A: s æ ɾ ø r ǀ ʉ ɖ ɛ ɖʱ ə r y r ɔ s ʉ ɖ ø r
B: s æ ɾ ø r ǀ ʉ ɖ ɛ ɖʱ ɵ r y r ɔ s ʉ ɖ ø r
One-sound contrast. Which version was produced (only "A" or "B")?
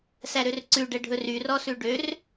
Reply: B